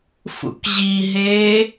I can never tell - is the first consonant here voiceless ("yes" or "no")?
yes